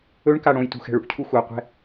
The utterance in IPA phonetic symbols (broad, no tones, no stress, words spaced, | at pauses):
ɵɳka ɽõjtṳxɛ̤ ɭṵcʰu xʷaqʷɛ̤